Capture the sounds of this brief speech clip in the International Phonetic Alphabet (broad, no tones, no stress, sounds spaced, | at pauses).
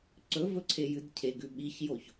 ǀ ɵ v ɵ ǀʰ e j ɨ d cʰ e ɡ ʉ ɓ i ç j o ç